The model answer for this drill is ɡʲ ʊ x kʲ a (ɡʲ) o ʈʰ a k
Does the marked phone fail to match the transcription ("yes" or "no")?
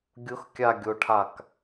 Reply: no